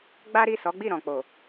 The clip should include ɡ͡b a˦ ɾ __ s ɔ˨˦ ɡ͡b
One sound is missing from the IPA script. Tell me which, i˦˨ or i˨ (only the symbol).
i˦˨